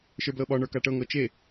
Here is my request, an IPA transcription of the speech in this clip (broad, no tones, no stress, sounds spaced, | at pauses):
ʃ ə˞ b l ɤ ɓ ɒ ɳ ə˞ k a ʈ ɤ ŋ ɤ t͡ʃ e